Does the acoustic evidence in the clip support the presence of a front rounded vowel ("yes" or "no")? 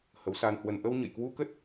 no